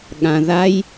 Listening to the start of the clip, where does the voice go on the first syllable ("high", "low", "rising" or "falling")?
low